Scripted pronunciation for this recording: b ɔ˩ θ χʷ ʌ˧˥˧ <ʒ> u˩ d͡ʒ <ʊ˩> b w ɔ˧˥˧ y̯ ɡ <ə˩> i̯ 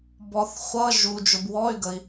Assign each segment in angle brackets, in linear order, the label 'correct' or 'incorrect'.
correct, correct, correct

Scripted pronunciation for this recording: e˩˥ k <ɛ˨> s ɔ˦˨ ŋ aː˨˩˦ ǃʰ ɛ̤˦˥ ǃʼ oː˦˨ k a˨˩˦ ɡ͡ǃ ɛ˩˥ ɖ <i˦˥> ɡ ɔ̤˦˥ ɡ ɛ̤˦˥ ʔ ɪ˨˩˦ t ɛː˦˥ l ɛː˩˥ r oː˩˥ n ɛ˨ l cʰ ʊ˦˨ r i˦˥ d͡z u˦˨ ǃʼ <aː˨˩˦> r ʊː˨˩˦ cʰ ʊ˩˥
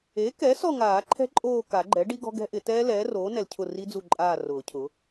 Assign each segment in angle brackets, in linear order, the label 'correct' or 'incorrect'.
incorrect: ɛ˩˥, correct, incorrect: aː˦˨

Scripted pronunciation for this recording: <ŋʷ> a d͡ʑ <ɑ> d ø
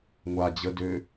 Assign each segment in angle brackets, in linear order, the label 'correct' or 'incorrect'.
correct, incorrect: ə

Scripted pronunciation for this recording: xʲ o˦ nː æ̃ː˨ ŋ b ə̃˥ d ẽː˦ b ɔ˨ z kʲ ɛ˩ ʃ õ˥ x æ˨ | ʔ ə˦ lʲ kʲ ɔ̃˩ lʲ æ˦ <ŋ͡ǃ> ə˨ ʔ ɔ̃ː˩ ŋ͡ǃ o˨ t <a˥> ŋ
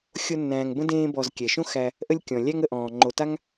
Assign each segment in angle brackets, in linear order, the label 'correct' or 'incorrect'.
incorrect: ŋ, correct

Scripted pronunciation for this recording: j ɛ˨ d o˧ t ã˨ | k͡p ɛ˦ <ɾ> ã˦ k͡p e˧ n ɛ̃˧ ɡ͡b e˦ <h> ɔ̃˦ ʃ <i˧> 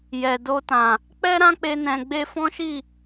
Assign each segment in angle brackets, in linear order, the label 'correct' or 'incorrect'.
correct, incorrect: f, incorrect: i˦˨

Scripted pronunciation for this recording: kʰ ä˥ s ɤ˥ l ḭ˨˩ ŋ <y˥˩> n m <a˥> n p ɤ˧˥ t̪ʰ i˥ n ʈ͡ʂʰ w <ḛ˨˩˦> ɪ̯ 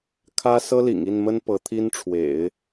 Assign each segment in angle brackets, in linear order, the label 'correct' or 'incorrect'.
incorrect: i˥˩, incorrect: ə˥, correct

